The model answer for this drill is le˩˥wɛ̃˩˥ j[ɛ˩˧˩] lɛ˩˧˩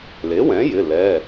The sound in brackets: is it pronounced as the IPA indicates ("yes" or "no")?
no